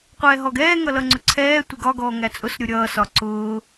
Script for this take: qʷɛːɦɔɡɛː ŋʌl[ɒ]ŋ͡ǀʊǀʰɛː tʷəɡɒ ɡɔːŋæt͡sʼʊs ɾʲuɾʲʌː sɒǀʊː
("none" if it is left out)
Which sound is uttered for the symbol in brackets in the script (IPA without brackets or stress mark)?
ʌ